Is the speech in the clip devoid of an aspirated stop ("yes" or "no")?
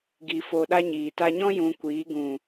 yes